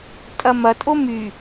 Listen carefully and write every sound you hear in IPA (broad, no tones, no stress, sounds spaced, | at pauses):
tʼ ɐ m ɐ tʼ o m y